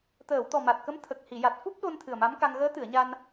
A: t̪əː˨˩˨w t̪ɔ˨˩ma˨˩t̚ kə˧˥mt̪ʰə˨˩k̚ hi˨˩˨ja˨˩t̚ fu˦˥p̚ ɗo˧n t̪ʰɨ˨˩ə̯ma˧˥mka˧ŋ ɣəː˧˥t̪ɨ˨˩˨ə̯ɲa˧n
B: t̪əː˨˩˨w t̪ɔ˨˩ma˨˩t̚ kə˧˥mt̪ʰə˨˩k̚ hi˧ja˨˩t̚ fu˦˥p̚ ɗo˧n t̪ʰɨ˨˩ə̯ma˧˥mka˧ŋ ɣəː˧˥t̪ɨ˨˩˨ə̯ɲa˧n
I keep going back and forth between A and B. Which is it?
A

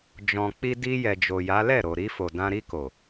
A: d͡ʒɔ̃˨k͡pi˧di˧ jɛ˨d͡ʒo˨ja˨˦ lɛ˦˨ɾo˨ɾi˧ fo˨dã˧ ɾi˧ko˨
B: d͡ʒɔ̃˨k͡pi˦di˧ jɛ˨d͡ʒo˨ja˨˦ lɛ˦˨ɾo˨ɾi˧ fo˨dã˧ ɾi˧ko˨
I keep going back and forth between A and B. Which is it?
A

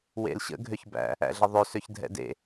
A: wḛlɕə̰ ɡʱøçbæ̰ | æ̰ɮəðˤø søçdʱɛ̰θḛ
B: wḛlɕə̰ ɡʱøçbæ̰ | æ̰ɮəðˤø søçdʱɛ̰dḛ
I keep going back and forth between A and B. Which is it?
B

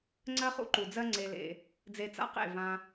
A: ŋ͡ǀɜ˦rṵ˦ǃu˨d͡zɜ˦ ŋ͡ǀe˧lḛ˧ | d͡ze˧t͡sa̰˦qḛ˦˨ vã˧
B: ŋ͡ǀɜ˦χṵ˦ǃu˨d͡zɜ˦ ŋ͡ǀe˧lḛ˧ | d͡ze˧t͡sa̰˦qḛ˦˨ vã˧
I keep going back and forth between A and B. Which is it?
B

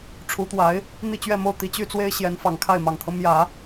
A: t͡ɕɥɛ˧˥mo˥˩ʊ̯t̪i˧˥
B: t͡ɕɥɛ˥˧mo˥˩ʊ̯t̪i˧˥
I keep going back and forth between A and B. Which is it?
B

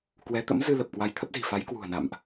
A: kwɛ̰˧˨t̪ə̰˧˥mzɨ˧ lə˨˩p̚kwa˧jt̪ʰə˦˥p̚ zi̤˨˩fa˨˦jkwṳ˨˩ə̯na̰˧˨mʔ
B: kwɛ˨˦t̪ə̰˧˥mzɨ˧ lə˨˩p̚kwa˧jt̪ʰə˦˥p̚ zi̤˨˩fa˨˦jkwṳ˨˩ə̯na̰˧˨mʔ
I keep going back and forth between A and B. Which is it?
B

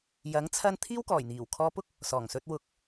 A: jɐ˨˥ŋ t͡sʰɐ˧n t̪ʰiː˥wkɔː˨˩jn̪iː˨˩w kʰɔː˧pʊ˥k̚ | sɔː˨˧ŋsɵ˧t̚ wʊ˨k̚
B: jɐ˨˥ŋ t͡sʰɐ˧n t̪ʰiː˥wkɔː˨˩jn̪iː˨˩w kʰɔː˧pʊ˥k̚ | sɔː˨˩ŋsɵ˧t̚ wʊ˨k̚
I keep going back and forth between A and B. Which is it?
B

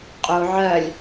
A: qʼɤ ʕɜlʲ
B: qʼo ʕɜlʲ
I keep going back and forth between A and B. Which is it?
B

